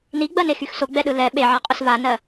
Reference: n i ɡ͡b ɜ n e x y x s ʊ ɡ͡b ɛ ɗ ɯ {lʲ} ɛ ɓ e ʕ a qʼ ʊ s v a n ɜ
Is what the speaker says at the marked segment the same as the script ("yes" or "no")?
no